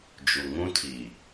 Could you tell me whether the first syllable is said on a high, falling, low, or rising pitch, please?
low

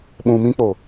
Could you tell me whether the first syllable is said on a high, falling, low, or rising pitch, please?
low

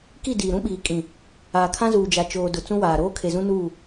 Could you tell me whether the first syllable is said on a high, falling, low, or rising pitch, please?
falling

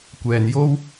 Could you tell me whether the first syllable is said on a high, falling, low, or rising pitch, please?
low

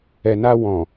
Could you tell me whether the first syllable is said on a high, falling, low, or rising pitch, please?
low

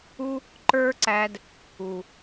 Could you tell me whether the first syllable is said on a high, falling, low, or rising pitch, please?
high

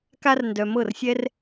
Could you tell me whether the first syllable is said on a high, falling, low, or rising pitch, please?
high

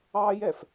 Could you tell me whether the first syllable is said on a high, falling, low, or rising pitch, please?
high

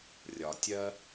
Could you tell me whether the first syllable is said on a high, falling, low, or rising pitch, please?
low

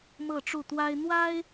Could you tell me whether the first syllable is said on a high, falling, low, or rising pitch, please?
falling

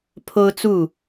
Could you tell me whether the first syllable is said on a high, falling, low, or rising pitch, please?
high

